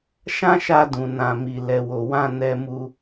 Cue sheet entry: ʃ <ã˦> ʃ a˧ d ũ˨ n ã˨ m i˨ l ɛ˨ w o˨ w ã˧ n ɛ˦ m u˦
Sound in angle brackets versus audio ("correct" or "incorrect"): correct